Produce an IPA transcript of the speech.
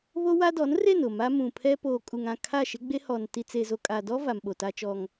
β o˦ w a˦ d ɔ˨˦ n r e˦˨ n ʊ˦˨ m a˦ m ũ˨ pʰ ɛ˦ p oː˨ kʼ u˨ ŋ ã˦˨ kʰ a˦˨ ʃ ɪ˦ ɡ͡b e˦ h ɔ˨ n t i˦ t͡s e˨ z o˨ kʼ a˨ d ɔ˦ v a˨ m ɓ o˨ t a˦ t͡ʃ ɔ˦ ŋ

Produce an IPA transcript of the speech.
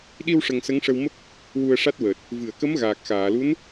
ɗ i˧ w ʂ ə˨˩ ŋ s ə˧˥ ŋ ʂ ə˧ w m ə˦˥ k̚ | w u˧ ə̯ ʂ a˦˥ t̚ w əː˨˩ t̚ | v ɨ˨˩˨ ə̯ k ə˧˥ m ɣ aː˨˩ k̚ x aː˨˩˨ l u˧˥ n

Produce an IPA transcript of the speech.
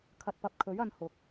kʰ ɐ˨ t̚ p ɐ˨ p̚ kʰ ɵ˨˥ ɥ ɐ˧ n h ʊ˨˥ k̚

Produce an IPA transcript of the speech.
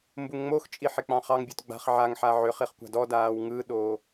m b u ŋ ŋ͡m o x t͡ʃʼ i ħ e k͡p ɑ̃ χ ɑ ŋ bʲ o t ɡ͡b a̤ χ ʕ a ŋ ħ a ʕ ʏ χ i χ kʷ a̤ d ɔ d aː w ŋ ɯ ɗ oː

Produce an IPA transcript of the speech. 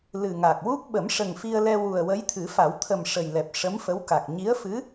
l ɨ˨˩ ŋ a˨˩ k̚ w u˦˥ k̚ ɓ ə˨˩˦ m ʂ ə˨˩ ŋ f i˧ ə̯ l ɛ˧ w u˨˩ ə̯ w ə˧˥ j t̪ʰ ɨ˨˩˦ f a˨˩˦ w t̪ʰ ə˨˩ m ʂ ə˨˩ j l ɛ˨˩ p̚ ʂ ə˧˥ m f ə˧˥ w k a˨˩ k̚ ɲ i˧˥ ə̯ f ɨ˧˥

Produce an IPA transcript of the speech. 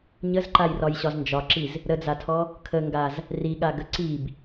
ɲ ə z ǃ a j r ɒ j ɕ ɒ z n d͡ʒ ɒ ǁ i z | ɾ ə d͡z a tʰ ɔ | kʰ ə ŋ ɡ a z | r i ɠ a ɡ ə ǀ i b

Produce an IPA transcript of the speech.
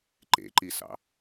ǃ ḛ ǃ i s ɑ̰

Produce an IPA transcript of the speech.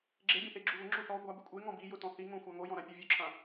ɡ͡ǁ e bʲ ã θ e ɡ͡ǁ u β ʊ ŋ͡ǁ u θ ɔ ɡʷ a b i kʷʼ e ŋ ɔ̃ b i j ʊ t ɔ̃ θ i ŋ õ xʷ a ŋ o j ɔ̃ ɾ ã pʲ u vʲ o ǁʰ ã

